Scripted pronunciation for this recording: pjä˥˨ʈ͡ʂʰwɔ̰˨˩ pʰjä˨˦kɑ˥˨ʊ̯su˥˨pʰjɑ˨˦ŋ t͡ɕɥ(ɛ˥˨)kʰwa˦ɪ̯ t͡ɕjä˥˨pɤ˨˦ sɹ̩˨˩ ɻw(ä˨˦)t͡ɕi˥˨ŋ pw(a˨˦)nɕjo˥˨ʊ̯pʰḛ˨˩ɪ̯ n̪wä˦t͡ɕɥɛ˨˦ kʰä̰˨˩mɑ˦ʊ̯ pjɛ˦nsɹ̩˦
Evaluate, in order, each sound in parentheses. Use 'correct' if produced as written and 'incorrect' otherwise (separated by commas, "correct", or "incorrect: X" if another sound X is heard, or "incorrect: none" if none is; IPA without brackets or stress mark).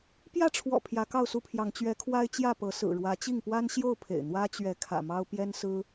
incorrect: ɛ˨˦, correct, incorrect: a˦